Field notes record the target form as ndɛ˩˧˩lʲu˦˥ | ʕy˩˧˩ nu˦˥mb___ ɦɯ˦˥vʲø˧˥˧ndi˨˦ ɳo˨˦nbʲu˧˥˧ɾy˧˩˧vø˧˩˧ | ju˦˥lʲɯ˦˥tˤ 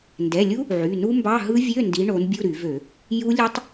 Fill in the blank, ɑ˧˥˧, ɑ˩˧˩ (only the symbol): ɑ˧˥˧